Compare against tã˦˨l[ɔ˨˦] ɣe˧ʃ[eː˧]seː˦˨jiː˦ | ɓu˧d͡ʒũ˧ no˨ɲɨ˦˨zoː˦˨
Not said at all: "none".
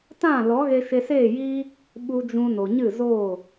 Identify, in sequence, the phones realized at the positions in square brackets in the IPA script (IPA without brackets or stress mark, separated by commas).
ɔ˨˦, e˧